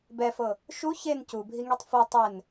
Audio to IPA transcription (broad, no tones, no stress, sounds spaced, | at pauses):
b ɛ f ɤ | ʃ u ç e n c u bʱ i ŋ i tˤ f o tˤ ɛ n